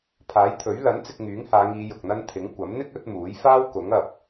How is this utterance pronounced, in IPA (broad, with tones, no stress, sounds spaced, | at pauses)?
pʰ aː˨˥ j t̪ʰ ɵ˨˥ ɥ l ɐ˨˥ n t͡s ɪ˧ k̚ ŋ yː˨˥ ŋ h aː˨˧ ŋ iː˨˧ j ʊ˨ k̚ n̪ ɐ˥ n t̪ʰ ɪ˨˥ ŋ kʷ ɐ˨˥ m n̪ ɪ˥ k̚ ɵ˨˥ t̚ m uː˨˥ j f aː˥ w k ʊ˨˥ ŋ ɐ˨ p̚